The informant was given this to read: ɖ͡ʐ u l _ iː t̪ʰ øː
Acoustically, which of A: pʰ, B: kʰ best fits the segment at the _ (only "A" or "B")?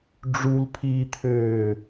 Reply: A